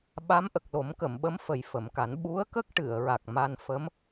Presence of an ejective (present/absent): absent